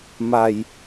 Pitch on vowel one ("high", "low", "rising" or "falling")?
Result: low